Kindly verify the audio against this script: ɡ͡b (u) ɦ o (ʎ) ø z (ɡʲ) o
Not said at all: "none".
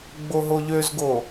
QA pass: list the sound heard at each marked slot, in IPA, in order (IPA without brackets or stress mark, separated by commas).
o, ʎ, ɡ